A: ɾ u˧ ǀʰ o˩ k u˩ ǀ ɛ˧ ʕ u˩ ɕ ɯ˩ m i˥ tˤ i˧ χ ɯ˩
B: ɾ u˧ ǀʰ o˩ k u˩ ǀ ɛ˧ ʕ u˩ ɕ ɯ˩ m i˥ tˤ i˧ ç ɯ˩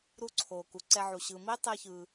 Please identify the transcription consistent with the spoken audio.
B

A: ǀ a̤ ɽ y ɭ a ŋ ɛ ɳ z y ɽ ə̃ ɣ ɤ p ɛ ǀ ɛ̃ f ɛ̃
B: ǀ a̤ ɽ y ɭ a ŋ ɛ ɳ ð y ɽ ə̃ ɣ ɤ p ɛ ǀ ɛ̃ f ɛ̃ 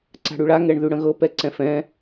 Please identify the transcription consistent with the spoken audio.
B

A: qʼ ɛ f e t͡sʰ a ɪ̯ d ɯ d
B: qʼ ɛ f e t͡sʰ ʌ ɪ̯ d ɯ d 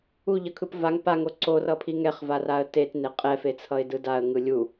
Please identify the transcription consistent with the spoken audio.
B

